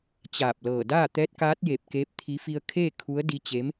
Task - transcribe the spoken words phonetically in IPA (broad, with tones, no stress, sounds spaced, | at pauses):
t͡ɕ aː˧˩ p̚ l ɤː˧˩ d aː˥˨ t̪ ɛː˧˥ t̚ k aː˧˥ t̚ j e˧˩ p̚ k eː˧˥ p̚ t̪ʰ i˧˥ f i˧ ə̯ kʰ eː˥˨ kʰ u˧˥ ə̯ d i˧˥ t͡ɕ e˧˥ m